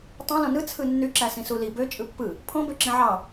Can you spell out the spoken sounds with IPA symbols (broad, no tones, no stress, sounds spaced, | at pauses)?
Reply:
tˤ õ l õ n ɯ t͡sʰ ɯ nː y ǁ æ s ĩ s u l i b ø t͡ʃʼ ɯ pː ɯ | pʰ õ b ø ǁ ĩ ʕ ɑ